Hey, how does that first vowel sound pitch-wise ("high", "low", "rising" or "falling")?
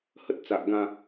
high